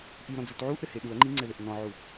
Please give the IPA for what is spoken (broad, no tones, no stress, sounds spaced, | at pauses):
ʔ i ɾ ɔ̃ d͡z u t ʕ u ʔ ɾ ɘ h e ɗ u ɐ̯ ŋ͡ǃ i ŋ͡ǀ ɛ ð ɘ ʔ n ɔ̃ ʕ u